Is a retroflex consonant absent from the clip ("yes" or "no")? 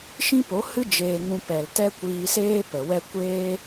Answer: yes